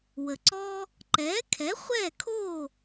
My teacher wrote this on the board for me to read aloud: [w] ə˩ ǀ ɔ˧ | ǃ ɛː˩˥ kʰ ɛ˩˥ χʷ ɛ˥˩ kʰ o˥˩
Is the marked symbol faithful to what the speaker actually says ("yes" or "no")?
yes